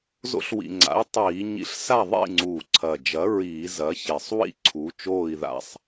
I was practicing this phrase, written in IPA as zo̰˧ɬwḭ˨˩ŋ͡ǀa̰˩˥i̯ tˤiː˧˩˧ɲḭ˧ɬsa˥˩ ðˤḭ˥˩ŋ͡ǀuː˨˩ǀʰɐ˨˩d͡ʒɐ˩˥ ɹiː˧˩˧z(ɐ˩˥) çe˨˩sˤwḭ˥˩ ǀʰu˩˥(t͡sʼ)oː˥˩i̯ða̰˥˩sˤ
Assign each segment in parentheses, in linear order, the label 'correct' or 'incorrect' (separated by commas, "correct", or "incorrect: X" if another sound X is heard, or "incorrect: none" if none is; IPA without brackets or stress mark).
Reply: correct, incorrect: t͡ʃ